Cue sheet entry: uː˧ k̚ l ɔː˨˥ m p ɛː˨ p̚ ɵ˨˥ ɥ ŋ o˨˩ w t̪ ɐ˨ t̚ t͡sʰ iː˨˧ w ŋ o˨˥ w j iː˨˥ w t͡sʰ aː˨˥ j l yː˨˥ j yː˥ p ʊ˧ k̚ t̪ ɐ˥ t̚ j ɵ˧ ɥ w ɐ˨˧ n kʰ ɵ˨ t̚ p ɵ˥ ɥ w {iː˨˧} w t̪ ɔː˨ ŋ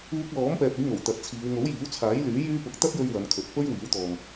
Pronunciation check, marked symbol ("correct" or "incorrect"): incorrect